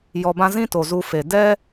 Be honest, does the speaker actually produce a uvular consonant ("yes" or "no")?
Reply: no